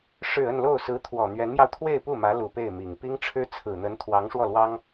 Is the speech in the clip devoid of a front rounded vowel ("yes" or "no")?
yes